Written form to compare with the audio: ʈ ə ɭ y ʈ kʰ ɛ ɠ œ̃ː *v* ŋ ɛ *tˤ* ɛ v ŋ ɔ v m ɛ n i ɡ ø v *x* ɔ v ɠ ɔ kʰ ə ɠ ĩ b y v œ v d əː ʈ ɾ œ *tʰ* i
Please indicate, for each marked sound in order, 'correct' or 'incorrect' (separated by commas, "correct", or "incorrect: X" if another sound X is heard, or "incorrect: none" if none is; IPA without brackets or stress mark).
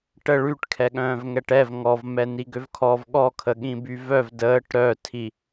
correct, incorrect: ʈ, incorrect: kʰ, correct